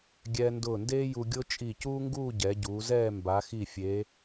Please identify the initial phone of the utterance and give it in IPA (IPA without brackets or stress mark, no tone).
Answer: ɡʲ